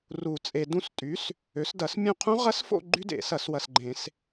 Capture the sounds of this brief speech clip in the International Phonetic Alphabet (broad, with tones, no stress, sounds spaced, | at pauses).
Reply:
r u˨˩˦ t͡sʼ e˨ d ũ˥˩ s tʼ y˩˥ s | ø˩˥ s d ɐ˨˩˦ s mʲ ũ˥˩ qʰ ũ˦˥ ʁ ɐ˦˥ s f o̰˥˧ ɡ͡ǃ y˦˥ d ḛ˨˩˦ s ɐ˨˩˦ s w ɐ˨ s ɡ͡ǃ ẽ˨˩˦ s